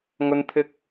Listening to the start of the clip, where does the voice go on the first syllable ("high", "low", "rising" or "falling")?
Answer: high